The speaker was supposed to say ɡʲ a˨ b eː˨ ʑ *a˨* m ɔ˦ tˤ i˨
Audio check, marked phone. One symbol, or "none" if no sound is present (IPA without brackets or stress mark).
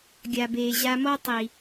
a˧